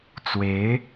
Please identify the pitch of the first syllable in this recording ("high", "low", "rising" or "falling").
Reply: rising